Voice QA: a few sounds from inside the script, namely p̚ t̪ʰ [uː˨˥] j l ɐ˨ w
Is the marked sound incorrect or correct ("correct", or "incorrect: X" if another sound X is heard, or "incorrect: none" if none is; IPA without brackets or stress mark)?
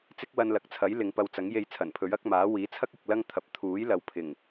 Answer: correct